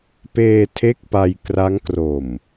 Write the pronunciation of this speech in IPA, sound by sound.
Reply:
p eː˧ tʰ e˥˩ k̚ p a˧ j k r a˦˥ ŋ k r o˨˩ m

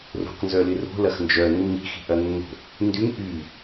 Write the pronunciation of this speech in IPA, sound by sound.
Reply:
r o̤ q n z œ l ɪ r o̤ l ɐ x n d͡ʒ œ nː i̤ x i̤ ʔ ɐ nː o̤ | n d y ŋ ʔ y

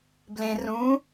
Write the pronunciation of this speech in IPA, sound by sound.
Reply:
b l ẽ r ũ

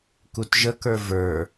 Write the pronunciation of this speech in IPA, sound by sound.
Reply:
k u t ʒ ə k ə˞ v ə˞

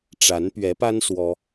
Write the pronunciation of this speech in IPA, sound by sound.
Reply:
ʈ͡ʂ a˨˦ n p ɥ ɛ˨˦ p a˦ n s w ɔ˦

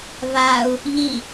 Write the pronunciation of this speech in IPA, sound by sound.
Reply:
β a u̯ | ʎ i

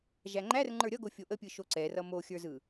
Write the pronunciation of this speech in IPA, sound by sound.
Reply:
ʒ æ ŋ͡ǃ æ r ŋ͡ǃ ə˞ ɾʲ ʌ ɡ o fʲ o ʔ ə pʲ ɯ ʃ o ǀ ɛ r ʌ m o xʲ ə˞ z ɯ

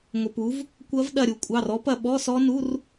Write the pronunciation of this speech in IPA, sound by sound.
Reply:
ŋʷ ɐ˧ p u˨˥ v | kʷ ɐ˦˥ v ɗ ɐ˥˧ ɾʲ u˧ kʷʼ ɑ˧˥˧ r ɔ˦˥ p ɐ˧ ɓ ɔ˧˥˧ s ɔ˦˥ n u˧˥˧ r

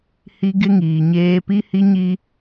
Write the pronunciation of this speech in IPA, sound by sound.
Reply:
h i˦ ɡ ɪ˦ ŋ iː˨ ɲ eː˦ p i˦ h i˦ ɲ i˦

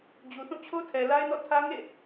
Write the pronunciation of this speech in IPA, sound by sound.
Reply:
d͡ʑ u˨ θ ũ˦˨ t͡ɕʰ o˦ tʰ ɛ˨ l a˦ ɪ̯ n ɔ̰˦˨ tʰ ä˦ ŋ ḛ˦˨

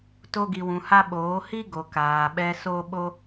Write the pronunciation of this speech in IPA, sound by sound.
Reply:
t o˦ ɡ i˧ w ũ˧ h a˦ ɓ oː˨˦ h i˦ ɡ o˨ k aː˨ ɓ ɛ˧ s o˦ ɓ o˦

